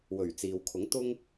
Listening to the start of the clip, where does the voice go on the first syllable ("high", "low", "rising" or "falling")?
low